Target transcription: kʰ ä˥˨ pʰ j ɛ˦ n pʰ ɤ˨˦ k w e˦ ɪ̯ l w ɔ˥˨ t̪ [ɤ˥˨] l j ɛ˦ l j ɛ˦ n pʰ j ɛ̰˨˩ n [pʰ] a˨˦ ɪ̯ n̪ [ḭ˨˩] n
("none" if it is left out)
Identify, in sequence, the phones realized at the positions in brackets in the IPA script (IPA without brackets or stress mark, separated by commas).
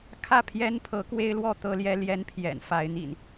ɤ˦, f, ḭ˨˩